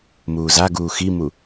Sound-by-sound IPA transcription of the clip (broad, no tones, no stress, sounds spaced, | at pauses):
m uː z a ɡ uː x i m u